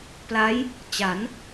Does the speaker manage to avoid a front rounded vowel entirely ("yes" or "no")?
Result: yes